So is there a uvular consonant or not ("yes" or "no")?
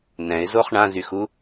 yes